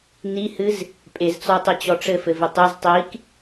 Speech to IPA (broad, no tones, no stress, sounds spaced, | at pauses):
n i h ɨ z | pʼ e z t͡s ɔ tˤ e t͡ɕ ɔ ʈ͡ʂ ɘ f ɘ v ɪ tˤ e z tˤ i k